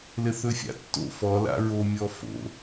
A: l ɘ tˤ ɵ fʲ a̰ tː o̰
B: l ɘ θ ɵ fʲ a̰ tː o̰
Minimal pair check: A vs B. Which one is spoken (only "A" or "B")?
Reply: B